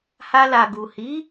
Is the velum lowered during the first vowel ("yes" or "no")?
no